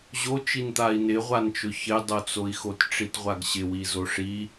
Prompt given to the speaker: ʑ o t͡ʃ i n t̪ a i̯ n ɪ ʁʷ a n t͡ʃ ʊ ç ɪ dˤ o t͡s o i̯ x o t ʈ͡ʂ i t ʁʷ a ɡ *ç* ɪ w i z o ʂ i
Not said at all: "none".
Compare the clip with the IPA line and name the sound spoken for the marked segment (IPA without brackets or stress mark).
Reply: ɕ